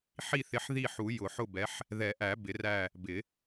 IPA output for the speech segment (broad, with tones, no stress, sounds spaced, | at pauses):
ħ i˦˨ θ ɪ˨˦ ħ ð i˦˨ ħ u˨˩˦ j ʊ˨˩˦ ħ ʊ˦˨ b ɛ˨˦ ħ | ð ɛ˨˩˦ ʔ æ˨˩˦ b ɪ˨˩˦ r æ˦˨ | b ɪ˨˩˦